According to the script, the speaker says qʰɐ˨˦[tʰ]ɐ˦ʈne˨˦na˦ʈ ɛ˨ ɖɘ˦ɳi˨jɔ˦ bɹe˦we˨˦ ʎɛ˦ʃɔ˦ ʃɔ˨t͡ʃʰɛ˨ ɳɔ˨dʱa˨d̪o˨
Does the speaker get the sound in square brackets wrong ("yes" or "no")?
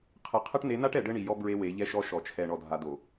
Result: yes